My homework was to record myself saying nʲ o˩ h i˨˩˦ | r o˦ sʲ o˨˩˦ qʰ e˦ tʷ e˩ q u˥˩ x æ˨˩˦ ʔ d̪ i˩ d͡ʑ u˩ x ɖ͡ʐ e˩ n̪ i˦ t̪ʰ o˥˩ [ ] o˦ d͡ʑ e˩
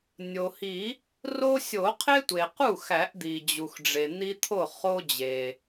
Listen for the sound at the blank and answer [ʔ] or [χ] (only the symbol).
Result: χ